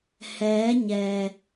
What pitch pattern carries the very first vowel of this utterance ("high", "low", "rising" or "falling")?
rising